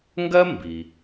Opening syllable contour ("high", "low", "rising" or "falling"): high